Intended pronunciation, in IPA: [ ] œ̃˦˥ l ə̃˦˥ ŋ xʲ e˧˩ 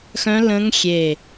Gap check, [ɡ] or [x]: x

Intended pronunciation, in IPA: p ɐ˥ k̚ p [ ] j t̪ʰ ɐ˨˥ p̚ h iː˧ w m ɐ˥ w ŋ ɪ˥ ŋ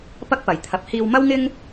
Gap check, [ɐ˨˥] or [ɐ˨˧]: ɐ˨˧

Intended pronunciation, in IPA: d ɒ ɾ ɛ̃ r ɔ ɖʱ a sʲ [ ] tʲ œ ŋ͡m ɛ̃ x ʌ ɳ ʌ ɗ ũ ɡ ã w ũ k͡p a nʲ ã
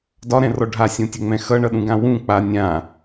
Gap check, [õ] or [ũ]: õ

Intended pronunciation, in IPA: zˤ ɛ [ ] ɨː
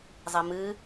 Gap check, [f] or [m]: m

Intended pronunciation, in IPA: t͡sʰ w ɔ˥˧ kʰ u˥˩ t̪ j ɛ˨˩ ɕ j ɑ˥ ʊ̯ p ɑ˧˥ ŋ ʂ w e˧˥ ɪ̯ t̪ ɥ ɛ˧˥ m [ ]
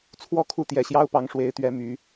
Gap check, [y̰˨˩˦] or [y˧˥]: y˧˥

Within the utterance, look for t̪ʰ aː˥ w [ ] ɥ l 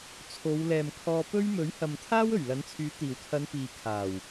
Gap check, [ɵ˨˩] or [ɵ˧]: ɵ˨˩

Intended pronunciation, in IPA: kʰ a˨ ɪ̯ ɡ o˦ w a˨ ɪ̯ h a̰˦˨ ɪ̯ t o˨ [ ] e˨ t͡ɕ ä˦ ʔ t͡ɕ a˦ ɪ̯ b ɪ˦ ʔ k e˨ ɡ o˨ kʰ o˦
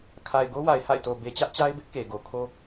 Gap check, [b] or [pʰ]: b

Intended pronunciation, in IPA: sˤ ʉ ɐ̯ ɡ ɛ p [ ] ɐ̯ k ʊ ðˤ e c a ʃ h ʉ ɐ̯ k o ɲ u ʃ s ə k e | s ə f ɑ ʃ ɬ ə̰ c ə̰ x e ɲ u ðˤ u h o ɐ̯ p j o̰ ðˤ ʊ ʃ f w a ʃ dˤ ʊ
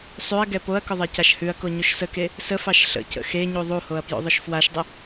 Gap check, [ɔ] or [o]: o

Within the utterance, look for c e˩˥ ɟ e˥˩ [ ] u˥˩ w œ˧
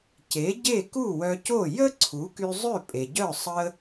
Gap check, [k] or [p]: k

